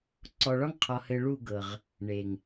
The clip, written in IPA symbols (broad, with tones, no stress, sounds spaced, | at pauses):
ǀ ɔ˨ ɭ ɒ˦ ŋ qʰ ɒ˨ h ɘ˨ ɭ u˦˨ ɡ ɤ˨ ʁ | ɳ e˨ ŋ